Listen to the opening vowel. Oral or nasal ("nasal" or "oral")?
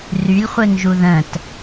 oral